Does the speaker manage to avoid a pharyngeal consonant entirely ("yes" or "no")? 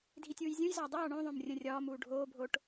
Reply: yes